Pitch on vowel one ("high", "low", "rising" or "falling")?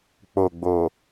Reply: low